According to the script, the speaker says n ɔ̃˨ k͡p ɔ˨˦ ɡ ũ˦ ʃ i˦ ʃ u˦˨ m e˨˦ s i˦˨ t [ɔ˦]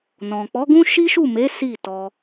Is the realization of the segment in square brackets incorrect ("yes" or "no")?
yes